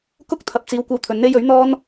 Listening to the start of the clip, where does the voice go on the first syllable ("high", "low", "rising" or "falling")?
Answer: high